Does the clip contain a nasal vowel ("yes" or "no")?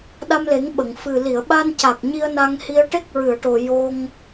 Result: no